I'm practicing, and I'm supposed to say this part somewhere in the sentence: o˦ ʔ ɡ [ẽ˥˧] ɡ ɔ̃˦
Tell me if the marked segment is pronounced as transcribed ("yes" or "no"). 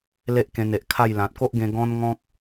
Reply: no